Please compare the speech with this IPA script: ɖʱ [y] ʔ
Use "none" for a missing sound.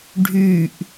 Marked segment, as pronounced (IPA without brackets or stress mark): y